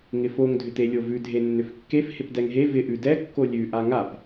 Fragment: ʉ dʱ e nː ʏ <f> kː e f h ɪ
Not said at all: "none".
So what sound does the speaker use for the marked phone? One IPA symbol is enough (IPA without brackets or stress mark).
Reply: f